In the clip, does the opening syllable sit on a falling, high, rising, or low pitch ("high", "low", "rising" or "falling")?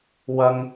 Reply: high